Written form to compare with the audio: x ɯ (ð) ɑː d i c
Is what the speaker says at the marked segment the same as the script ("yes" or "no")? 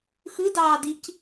no